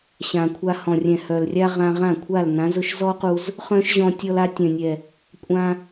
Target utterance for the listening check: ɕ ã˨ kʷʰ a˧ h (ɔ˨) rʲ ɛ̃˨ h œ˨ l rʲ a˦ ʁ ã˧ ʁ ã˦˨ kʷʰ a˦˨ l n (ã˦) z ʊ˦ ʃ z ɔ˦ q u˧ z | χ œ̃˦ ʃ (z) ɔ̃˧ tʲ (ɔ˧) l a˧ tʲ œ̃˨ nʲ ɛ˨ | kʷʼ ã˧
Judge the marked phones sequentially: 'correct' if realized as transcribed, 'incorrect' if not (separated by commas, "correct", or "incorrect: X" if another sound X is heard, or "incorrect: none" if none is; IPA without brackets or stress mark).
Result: incorrect: ɔ̃˨, incorrect: ã˨˦, incorrect: ʑ, correct